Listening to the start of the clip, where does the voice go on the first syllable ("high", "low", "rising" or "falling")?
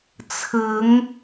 rising